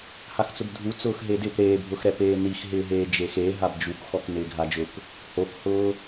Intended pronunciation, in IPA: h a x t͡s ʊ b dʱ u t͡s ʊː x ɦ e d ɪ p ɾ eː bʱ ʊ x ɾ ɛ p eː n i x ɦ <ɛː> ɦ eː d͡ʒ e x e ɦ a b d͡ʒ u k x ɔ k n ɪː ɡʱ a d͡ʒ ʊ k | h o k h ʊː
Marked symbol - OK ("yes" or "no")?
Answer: no